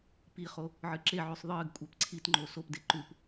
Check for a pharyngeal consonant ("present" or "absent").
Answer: present